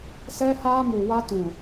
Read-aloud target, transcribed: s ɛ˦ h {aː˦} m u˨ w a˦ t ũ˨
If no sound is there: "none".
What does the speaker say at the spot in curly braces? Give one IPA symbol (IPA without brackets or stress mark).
aː˦